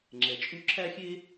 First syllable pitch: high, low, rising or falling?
low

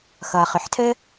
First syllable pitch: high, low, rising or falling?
low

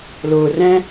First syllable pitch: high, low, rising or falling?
low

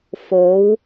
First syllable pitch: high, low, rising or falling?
rising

